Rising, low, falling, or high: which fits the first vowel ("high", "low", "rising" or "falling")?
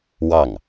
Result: falling